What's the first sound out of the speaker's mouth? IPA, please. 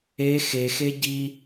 e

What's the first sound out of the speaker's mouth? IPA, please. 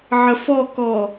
ʕ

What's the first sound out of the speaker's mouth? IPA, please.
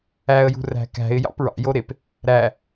æ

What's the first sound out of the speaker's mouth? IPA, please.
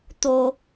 t̪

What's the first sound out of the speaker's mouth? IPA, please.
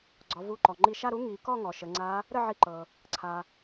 ɡ͡ǀ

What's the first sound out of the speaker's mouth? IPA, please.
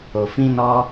o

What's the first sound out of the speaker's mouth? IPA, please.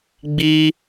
ɡ͡b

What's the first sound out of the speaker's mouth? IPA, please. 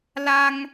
l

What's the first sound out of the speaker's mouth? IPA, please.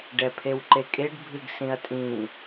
ɖ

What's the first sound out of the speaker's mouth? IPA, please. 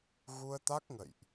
ɣ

